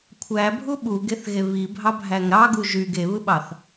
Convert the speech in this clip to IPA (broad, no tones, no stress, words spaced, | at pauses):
kʷʰæbʱu ɓuɡeθɣe βibʱɑbʱæŋ ɾɑɡu ʒyɡ eβɯɓɑθ